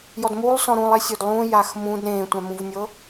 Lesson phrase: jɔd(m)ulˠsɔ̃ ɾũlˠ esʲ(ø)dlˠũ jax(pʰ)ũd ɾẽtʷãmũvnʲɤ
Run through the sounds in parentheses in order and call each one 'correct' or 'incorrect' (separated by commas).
correct, correct, incorrect